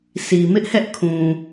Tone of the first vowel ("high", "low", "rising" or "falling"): low